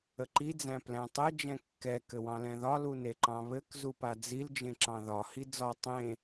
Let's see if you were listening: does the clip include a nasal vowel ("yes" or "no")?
yes